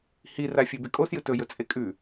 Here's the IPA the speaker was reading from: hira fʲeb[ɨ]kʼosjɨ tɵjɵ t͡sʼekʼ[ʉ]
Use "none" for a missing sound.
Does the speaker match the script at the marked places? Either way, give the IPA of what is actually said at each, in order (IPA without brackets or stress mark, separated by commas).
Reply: e, ʉ